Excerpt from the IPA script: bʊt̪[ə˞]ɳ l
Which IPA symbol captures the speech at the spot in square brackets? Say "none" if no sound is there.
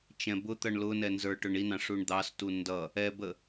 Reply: ʌ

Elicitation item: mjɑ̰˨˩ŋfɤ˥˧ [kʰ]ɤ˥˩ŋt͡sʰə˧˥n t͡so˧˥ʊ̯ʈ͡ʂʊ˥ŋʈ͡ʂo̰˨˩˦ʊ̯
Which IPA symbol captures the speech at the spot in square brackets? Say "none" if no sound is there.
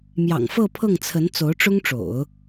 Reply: pʰ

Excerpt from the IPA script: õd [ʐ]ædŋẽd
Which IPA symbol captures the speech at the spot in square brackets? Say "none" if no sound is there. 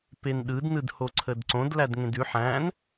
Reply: l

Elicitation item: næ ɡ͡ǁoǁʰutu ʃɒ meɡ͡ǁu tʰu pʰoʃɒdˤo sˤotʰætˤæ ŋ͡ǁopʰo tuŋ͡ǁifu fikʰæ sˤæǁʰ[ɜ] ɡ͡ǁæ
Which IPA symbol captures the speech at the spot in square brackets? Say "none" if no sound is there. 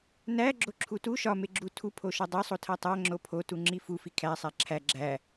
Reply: æ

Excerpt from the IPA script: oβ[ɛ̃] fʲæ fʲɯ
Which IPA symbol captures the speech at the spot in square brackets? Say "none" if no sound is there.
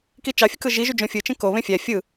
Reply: ẽ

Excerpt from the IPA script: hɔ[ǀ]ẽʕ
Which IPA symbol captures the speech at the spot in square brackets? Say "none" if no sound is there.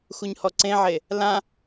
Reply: ǀ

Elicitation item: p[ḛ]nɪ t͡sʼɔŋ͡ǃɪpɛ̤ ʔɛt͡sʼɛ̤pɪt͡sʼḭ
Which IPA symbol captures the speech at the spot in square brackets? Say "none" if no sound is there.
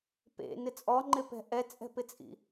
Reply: ḛ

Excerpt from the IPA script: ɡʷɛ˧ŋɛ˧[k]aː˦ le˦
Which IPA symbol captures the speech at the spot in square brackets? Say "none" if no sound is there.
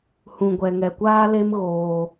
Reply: kʷ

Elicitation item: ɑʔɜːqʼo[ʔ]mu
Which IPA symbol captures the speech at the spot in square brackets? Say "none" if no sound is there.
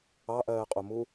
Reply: none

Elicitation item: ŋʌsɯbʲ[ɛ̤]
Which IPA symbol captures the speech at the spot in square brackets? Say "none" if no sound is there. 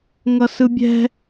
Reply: ɛ̤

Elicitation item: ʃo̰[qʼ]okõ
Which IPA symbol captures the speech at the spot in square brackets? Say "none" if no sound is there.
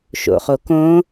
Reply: χ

